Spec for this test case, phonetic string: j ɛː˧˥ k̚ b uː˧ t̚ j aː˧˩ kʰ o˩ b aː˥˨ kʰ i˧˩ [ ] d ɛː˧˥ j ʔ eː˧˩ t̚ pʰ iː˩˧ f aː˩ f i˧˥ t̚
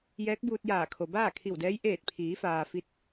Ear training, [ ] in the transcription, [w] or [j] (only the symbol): w